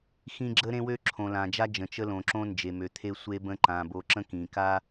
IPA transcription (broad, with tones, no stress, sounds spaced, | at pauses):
x ĩ˦ ɡ͡ǁ ə˦ ɾ ẽ˦ w ø˦ ǁʰ õ˨ l ã˨ d͡ʒ a˦ d͡ʒ ə̃˨ t͡ʃ ə˦ l õ˨ ǁ õ˦ n d͡ʒ e˨ m ø˨ t̪ʰ e˦ sʷ e˦ b ə̃˦ ǃ ã˨ b o˨ ǁ ə̃˦ k ĩ˨ k a˦